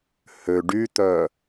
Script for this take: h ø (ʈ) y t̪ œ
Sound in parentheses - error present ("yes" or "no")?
yes